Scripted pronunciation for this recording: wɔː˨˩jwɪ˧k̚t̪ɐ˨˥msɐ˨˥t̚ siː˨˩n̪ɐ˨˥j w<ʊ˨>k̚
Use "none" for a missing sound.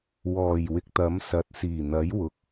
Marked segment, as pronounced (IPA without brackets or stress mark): ʊ˨